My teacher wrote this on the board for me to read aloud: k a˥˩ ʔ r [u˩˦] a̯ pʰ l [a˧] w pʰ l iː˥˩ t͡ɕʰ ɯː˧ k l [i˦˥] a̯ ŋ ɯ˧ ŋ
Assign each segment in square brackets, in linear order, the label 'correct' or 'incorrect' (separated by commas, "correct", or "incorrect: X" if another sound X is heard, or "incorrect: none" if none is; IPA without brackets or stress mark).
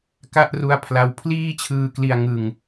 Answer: incorrect: u˦˥, correct, incorrect: i˧